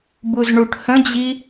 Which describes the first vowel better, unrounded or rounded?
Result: rounded